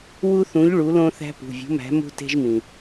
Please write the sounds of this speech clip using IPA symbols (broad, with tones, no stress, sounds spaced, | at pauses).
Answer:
w u˦ θ ũ˨˥ ʎ ɭ u˨˥ l õ˦ θ æ̤˦ p ṳ˩˧˩ vʲ ṳ˨˥ m æ̤˨˥ m ṳ˦ t e̤˦ ʒ m ĩ˩